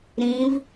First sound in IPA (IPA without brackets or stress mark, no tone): ɾ